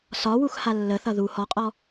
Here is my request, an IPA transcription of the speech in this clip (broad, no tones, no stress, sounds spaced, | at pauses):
s ɒ w u x h a lː ə θ ʌ ð u h ɔ qʼ ɔ